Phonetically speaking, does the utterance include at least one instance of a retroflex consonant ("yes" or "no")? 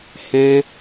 no